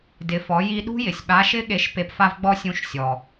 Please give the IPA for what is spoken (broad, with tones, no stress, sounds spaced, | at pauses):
d ɪ˩˧ f ɔ˩˧ j i˧ ɗ ṳ˥ j ɪ˩ sʲ ɓ a˧˥ ʃ ɪ˥ ɠ e˧˥ ʃ p e˧ p f a˥ v ɡ͡b ɔ˥ sʲ ũ˧˥ ʃ sʲ ɔ˩